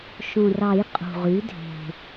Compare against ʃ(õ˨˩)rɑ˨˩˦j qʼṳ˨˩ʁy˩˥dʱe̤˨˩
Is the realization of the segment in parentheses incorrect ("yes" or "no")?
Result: no